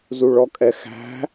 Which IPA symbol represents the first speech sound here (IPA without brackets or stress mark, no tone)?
z